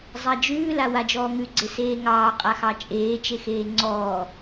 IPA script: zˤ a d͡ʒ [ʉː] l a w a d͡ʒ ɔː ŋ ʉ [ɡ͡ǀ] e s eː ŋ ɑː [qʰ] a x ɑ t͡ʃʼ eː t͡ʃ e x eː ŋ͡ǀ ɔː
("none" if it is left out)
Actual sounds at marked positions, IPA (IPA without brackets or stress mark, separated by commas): ʉː, ɡ͡ǀ, qʼ